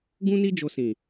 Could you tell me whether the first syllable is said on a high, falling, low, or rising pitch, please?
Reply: high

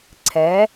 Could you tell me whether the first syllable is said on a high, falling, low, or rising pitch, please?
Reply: rising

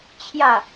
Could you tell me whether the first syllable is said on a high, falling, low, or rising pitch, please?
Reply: falling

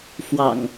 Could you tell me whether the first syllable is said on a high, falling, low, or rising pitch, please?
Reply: low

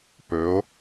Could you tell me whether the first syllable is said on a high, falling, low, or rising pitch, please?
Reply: rising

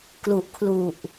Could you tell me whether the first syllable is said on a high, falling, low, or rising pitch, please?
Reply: low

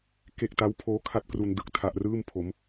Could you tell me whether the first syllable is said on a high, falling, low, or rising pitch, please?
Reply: low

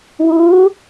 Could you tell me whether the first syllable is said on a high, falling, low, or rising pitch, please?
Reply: rising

